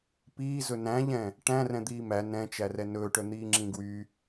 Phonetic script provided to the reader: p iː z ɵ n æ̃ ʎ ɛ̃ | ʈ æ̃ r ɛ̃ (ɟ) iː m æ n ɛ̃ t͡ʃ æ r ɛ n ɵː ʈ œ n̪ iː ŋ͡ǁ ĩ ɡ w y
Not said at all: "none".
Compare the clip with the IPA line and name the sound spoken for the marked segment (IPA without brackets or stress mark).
d̪